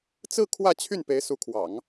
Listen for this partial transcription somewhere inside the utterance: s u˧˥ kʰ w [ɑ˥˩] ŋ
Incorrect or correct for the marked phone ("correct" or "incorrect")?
incorrect